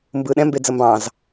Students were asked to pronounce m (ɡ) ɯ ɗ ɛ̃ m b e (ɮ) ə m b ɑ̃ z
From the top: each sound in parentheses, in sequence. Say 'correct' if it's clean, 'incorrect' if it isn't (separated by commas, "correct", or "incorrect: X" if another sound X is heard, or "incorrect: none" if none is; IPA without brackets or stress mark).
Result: incorrect: b, incorrect: d͡z